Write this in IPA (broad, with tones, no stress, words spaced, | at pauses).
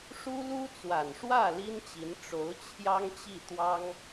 ʂu˥lu˥ t͡swa˨˩nʂwä˥˩ li˥nt͡ɕi˧˥n ʈ͡ʂo˧˥ʊ̯t͡ɕʰjɑ˥ŋt͡ɕi˥˩ t̪wɑ˥ŋ